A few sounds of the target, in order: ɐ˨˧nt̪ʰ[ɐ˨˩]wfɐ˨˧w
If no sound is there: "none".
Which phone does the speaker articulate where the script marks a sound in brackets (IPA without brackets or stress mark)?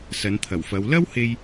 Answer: ɐ˨˩